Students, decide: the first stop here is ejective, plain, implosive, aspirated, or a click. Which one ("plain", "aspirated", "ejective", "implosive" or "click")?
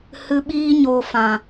implosive